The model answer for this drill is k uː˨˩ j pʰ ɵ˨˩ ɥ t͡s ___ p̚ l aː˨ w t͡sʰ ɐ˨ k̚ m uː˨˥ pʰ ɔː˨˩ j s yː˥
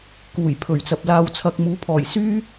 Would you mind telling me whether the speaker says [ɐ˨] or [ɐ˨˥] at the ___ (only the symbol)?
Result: ɐ˨